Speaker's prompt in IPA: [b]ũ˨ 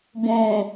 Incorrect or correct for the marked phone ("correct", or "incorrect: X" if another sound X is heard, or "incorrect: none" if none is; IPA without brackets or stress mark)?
correct